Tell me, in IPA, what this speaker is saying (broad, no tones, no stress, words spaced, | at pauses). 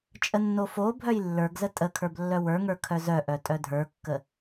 t͡ʃʼənːofobʱœj lːə˞ɡzə tʼəkʰə˞b lːœwə˞ŋə˞ kʰœzœʔœ tʼœdʱə˞kːə